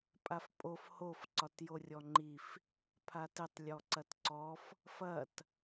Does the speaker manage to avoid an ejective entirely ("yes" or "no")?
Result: no